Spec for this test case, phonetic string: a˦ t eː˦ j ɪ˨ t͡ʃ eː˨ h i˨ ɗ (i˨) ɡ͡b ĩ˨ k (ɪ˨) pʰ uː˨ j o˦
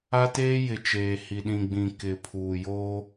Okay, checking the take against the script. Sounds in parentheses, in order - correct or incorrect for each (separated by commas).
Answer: incorrect, correct